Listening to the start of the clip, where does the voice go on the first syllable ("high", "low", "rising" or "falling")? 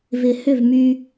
low